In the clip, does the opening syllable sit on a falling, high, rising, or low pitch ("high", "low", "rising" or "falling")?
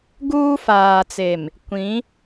high